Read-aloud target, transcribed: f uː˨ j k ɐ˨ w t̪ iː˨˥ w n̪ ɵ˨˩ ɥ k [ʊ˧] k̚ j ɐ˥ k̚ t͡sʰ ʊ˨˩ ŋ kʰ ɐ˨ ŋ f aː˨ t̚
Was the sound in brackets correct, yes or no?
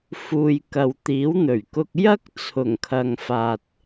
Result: yes